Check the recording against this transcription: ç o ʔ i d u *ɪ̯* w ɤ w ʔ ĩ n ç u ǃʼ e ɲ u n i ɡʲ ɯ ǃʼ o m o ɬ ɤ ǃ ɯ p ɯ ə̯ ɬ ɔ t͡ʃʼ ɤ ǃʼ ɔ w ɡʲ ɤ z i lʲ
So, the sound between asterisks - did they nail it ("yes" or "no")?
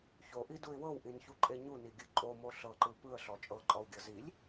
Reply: yes